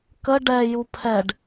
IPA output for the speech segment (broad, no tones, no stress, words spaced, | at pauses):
kə ɖɛju pʰɛɖ